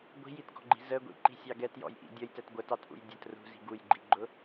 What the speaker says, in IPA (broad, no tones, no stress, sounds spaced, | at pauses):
ɡʷ i̤ j i t ɡ ɔ̤ ɡ͡ǃ i̤ z ə ɡʷ ḭ ǃ i̤ sʲ ɑ ɡ ɛ t j ɔ̰ j ʔ ḭ dʲ ʌ j t ɛ t ɡʷ ə t ɑ t ʔ ṵ j dʲ ə t r ṳ z i̤ ɡ u j ɡ͡ǃ i ɡ͡ǃ ʊ